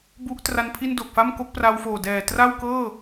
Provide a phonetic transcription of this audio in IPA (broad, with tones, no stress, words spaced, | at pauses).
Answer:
bu˦˥ʔ tra˧n pʰi˥˩n do˨˩k̚fa˥˩mko˥˩k̚ pra˧wfoː˨˩dɛː˨˩ tra˥˩wkɤː˥˩